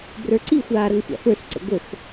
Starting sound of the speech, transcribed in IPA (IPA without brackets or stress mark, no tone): b